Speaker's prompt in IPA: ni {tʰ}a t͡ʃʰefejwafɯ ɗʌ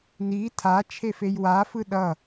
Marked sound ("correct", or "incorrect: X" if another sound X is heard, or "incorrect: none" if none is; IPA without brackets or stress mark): correct